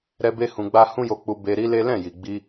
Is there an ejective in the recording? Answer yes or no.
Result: no